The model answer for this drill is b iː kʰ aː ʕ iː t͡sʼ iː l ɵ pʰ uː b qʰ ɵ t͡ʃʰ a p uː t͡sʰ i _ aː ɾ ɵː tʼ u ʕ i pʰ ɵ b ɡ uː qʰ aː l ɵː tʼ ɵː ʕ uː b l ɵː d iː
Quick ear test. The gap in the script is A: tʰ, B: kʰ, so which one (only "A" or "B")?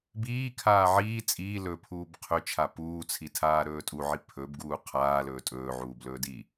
A